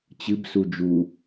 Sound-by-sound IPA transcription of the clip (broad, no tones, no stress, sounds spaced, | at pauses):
t͡ɕ ɨ b s u d͡ʒ u